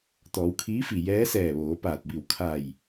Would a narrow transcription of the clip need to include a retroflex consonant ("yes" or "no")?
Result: no